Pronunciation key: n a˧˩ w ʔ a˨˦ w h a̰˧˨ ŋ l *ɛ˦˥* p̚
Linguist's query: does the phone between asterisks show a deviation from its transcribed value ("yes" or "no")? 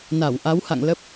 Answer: yes